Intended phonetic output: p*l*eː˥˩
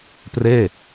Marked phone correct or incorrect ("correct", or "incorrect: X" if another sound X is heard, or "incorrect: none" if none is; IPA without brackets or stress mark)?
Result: incorrect: r